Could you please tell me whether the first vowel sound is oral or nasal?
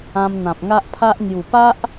nasal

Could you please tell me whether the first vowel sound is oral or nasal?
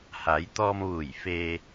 oral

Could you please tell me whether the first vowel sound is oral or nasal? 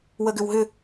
oral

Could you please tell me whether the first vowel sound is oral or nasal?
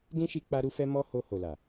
nasal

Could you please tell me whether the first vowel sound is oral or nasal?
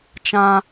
nasal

